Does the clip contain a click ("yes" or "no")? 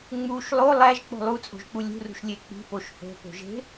no